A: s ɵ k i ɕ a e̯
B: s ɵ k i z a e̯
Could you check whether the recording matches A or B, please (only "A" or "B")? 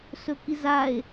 B